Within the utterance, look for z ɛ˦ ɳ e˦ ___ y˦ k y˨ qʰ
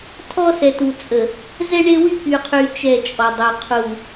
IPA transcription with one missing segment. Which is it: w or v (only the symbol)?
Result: w